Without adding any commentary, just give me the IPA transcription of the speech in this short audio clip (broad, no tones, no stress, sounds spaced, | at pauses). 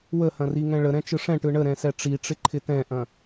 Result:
w ə h ɐ̃ r i ŋ ɛ̃ ɭ ə ɾ ɛ̃ t͡ʃ ɯ ʂ ɛ̃ ʈ ɯ ɳ ə ɾ ɛ̃ s ɛ ʈ͡ʂ i ʈ͡ʂ ɪ ǃʰ ɪ t ɛ̃ ʔ ɐ̃